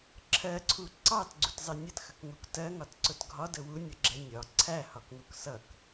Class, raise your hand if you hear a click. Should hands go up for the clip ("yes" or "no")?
yes